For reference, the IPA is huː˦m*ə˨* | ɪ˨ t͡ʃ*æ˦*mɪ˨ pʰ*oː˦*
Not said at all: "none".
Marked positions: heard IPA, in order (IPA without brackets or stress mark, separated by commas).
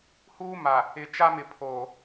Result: a˨, a˦, oː˨